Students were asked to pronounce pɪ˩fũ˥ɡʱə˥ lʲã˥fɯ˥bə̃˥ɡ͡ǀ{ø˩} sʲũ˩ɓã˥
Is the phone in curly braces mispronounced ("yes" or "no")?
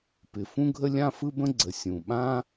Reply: yes